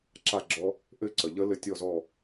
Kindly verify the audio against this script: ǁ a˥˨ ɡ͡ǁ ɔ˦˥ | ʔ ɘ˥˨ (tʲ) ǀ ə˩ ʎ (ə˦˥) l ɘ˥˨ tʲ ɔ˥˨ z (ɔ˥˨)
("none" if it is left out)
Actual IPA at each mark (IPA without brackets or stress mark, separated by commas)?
none, ə˦˥, ɔ˥˨